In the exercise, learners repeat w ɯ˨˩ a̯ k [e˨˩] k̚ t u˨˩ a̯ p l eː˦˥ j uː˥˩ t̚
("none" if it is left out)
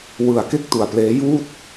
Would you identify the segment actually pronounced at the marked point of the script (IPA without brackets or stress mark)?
e˥˩